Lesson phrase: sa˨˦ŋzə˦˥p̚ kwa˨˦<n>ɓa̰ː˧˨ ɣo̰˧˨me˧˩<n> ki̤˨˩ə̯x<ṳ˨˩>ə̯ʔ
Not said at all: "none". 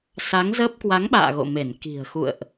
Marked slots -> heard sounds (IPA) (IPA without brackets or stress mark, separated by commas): ŋ, n, ṵ˧˨